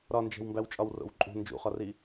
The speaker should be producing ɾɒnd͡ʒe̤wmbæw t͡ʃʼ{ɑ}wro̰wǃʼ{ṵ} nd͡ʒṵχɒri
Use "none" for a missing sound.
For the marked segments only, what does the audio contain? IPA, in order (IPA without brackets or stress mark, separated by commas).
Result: ɒ, ṳ